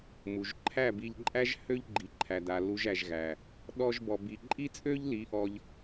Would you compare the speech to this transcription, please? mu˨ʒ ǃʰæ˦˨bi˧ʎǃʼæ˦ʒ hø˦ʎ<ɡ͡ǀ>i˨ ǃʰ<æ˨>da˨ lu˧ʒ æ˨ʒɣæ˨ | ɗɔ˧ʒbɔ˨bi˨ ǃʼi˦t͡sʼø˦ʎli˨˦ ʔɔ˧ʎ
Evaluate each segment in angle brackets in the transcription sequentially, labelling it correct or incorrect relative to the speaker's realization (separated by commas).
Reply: incorrect, correct